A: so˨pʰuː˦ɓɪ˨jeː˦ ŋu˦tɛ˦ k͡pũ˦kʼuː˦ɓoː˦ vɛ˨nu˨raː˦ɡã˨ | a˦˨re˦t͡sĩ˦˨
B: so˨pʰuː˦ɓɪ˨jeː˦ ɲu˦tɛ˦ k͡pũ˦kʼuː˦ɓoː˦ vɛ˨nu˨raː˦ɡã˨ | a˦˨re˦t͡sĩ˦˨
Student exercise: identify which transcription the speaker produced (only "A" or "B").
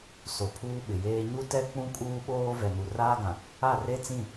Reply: B